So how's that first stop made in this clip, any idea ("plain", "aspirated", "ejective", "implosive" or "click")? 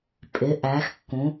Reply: ejective